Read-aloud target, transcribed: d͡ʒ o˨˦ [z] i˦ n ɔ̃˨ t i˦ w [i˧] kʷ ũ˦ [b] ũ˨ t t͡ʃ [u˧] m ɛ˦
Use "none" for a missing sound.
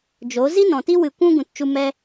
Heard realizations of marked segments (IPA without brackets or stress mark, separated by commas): z, ɨ˧, ɡ, u˧